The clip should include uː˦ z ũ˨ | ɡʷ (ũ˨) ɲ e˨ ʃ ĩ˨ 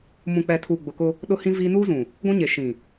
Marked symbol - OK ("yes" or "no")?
no